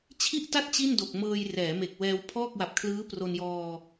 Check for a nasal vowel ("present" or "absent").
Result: absent